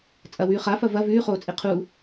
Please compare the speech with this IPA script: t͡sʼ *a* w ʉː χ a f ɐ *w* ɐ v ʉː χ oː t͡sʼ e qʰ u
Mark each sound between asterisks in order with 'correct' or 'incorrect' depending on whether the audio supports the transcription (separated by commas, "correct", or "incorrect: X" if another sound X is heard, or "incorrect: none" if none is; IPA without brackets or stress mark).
incorrect: ɐ, incorrect: v